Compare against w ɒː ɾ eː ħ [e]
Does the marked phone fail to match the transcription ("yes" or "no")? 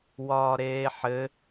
yes